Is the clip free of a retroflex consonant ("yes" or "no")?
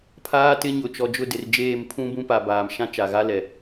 yes